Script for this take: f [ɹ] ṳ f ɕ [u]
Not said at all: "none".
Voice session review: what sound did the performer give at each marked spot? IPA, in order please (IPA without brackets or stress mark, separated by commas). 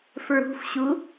ɹ, u